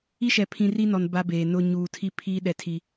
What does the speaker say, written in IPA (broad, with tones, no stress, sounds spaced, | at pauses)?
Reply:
i˦ ʃ ɛ˨ pʰ ĩ˨ r i˦ n ɔ˨ n b a˦ b eː˨ n ʊ˦ ɲ uː˨ tʰ i˦ pʰ iː˦ ɗ ɛ˨ tʰ i˨